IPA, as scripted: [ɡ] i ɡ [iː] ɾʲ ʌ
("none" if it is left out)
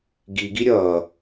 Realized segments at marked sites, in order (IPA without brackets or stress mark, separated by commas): ɡ, i